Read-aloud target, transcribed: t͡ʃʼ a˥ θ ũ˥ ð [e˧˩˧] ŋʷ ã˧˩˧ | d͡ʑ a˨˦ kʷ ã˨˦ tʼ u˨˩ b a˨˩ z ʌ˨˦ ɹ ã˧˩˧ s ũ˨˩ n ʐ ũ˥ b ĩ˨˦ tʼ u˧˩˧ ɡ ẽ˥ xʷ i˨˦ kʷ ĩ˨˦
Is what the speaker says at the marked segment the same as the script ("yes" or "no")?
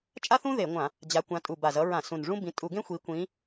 yes